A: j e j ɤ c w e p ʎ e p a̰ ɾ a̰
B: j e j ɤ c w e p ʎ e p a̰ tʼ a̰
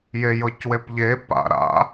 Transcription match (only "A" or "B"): A